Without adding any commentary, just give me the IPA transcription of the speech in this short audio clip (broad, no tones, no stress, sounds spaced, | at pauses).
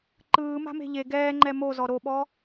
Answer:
ǃ ɯː m a̤ m e̤ ʎ e ɡ ɛː ŋ͡ǃ ɛ m o z ɔ ɾ o ɓ ɔ